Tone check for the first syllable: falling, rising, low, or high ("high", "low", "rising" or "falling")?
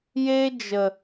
high